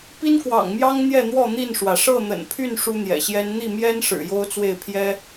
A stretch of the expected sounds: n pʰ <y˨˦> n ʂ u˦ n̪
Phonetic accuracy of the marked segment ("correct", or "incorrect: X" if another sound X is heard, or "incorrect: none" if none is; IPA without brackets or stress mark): incorrect: y˥˨